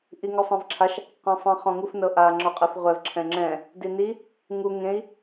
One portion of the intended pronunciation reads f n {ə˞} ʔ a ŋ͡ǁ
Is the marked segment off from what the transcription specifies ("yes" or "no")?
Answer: yes